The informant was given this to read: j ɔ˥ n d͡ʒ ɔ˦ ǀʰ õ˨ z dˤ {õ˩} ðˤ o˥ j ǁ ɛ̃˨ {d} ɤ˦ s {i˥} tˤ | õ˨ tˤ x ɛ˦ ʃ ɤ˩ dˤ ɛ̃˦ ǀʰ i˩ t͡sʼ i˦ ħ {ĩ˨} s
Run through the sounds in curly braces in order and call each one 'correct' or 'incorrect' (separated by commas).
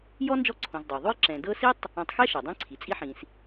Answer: incorrect, correct, correct, correct